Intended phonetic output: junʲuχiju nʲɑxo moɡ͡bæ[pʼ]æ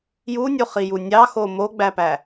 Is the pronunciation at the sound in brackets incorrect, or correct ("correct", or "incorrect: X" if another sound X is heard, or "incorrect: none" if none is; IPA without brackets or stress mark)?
incorrect: p